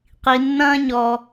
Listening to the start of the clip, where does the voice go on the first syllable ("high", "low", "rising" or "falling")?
low